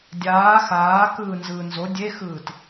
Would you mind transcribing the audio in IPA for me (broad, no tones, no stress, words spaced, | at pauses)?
dʲaː xaːkɯːnzɯː nzo dʲexɯːt